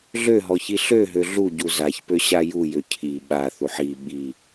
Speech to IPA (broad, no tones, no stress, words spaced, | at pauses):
ɮøɦɔçi ɬøɦø ɮuɟu zaçpøɕa jujø cʰi ɓaθuħ i ɓi